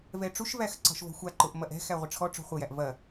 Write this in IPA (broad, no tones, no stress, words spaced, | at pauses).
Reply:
vɛʈ͡ʂuʃvæx ǀɔ̤ʃvɔ̤xʷaǃʊʔ mɐʔɛ̤ xæʁʷəʈ͡ʂʰɔʈ͡ʂɔ̤ χʷɐjæʔ vɐ